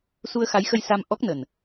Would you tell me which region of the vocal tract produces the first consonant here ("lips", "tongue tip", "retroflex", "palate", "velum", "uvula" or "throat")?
tongue tip